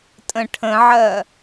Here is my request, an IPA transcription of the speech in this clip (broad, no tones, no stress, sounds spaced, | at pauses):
tʼ ə̃ ʈʰ ə̃ ʕ ɜ